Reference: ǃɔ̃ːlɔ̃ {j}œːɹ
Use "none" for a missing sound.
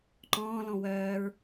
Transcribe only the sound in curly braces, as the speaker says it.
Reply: w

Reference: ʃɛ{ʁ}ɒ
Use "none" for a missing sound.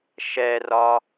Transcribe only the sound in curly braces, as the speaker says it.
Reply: r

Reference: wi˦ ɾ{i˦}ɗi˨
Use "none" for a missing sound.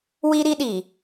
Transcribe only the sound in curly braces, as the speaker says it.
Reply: i˦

